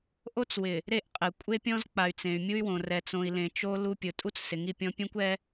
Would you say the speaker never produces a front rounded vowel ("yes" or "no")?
no